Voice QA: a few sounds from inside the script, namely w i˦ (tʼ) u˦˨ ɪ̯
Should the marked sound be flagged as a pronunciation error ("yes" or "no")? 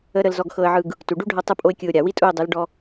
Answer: no